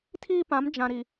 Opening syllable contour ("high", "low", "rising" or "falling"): high